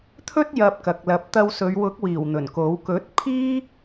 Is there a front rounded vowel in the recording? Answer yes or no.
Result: no